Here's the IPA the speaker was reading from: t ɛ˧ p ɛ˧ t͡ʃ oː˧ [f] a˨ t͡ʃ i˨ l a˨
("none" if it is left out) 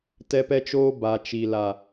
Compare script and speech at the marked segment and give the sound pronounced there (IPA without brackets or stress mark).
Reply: b